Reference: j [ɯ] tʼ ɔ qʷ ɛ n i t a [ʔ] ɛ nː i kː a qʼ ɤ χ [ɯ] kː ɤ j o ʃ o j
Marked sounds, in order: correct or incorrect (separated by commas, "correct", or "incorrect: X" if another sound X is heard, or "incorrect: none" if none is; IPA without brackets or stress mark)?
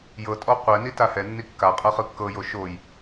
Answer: incorrect: ɤ, incorrect: h, correct